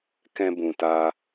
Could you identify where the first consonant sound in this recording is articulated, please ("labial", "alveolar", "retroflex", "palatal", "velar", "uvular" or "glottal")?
velar